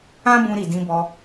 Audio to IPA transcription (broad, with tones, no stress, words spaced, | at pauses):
ã˦bũ˧ ɾi˨dĩ˧bɔ˧